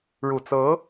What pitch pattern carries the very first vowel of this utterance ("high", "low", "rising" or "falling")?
low